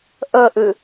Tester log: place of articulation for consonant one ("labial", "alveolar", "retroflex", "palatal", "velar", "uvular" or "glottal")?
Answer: glottal